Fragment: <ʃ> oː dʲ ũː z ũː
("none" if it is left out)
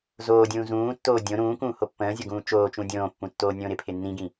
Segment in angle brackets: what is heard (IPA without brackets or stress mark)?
z